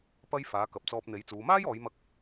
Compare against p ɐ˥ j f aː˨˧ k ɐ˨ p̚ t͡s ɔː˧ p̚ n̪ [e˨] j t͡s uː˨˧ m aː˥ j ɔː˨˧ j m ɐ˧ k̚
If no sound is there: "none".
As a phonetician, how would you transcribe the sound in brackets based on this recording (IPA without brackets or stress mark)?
e˨˥